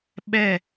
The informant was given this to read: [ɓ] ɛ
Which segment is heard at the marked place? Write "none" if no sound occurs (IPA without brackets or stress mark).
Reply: ɓ